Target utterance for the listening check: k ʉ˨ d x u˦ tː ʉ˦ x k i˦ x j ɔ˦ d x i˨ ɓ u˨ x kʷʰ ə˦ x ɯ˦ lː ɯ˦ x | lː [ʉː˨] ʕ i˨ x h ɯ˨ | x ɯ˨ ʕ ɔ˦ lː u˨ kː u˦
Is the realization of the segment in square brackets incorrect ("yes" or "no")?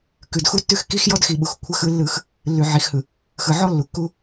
yes